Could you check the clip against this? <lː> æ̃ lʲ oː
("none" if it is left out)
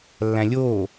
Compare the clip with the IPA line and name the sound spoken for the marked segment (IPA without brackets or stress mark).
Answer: lː